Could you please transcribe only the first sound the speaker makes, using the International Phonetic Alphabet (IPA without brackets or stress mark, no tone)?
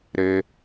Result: ɾ